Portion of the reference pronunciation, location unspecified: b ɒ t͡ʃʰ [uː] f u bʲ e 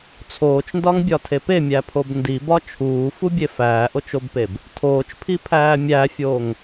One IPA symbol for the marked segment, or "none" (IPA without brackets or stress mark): uː